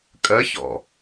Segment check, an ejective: present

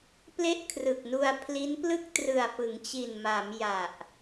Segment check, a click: absent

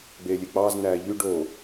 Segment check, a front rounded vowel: present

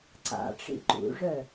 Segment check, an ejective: absent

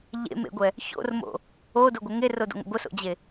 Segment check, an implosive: absent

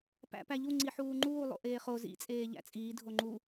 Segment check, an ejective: present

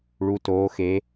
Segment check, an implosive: absent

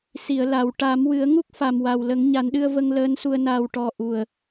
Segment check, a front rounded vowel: absent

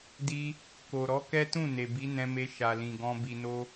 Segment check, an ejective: absent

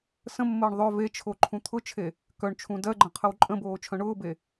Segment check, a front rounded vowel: present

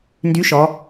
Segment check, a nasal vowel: absent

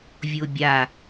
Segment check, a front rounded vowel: absent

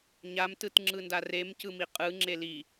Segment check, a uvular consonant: present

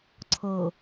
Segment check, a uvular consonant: absent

